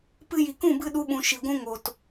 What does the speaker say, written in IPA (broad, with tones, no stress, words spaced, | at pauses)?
pɨ˧ji˨kũ˦˨bɨ˧ ɗu˧ɓũ˨ ʃi˨ɡʷũ˦ŋo˨t